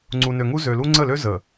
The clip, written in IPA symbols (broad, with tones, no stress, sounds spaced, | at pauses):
ŋ͡ǀ u˨ n ø˨ ŋ u˦ z ø˨ l u˦ ŋ͡ǀ ə˦˨ l ø˦ z ə˨